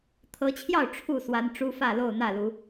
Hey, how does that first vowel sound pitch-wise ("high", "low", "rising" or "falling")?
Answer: rising